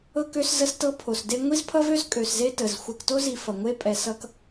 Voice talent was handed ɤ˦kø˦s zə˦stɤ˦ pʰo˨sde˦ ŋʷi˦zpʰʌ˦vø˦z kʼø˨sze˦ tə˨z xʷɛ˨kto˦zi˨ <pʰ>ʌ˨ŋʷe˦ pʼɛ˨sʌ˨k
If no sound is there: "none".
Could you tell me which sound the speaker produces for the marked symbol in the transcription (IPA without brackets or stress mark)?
f